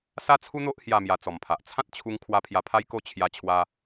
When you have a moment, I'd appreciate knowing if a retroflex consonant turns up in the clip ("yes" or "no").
no